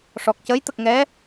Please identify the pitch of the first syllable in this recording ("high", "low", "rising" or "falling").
low